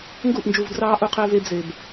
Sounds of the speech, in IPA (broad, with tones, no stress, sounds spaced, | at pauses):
ŋ ɡ u˦˨ ʔ n d͡ʒ u˨ v d r ɑː˦ ʔ u˦ qʰ eː˦ v eː˦ b z e˨ b